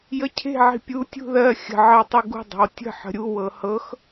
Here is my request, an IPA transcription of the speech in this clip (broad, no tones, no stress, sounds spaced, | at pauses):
j ə cʰ e̤ ʕ i̤ pʲ u tʲ ṳ ð ɜ xʲ ə̤ ʕ ɜ tˤ i ɡ ṳ dˤ ə̤ w tʲ ə̤ ħ ə̤ ɾʲ u w ɤ h ɤ x